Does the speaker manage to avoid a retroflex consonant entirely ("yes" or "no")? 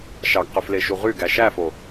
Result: yes